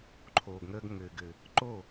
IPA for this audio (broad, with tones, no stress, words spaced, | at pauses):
ǃʰoː˨ɡŋəː˧ɡŋɘː˨ɡɘ˨ | ǃo˦˨